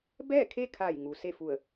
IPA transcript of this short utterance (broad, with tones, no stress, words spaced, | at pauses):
bɛː˥˨kʰe˥˨kʰa˧˩jŋu˩ se˥˨fu˧˩ə̯